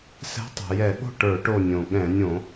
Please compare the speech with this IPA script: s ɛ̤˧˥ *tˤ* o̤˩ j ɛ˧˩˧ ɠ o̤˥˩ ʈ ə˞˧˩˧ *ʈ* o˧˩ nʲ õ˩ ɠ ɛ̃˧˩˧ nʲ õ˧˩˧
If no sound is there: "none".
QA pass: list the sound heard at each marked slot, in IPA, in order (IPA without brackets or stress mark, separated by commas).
tˤ, ʈ